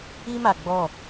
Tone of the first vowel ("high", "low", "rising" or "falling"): high